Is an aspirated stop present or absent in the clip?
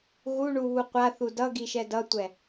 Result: absent